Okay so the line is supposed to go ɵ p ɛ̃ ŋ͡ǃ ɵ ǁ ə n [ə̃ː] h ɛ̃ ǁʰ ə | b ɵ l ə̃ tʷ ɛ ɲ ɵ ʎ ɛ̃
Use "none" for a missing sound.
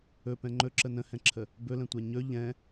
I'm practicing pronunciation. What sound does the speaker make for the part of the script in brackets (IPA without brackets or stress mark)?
ə̃